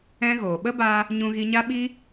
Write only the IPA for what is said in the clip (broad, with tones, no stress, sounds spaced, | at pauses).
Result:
ɛ̃˧ ɣ oː˨ ɓ ə˦ b a˧ | ɲ ũ˧ ɣ i˧ ɲ a˦ ɓ i˦